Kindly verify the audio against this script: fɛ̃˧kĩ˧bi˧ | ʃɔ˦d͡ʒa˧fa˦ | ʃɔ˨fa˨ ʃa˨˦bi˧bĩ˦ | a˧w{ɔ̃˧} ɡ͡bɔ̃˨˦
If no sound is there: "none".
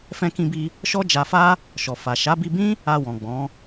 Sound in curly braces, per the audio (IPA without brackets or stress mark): ɔ̃˨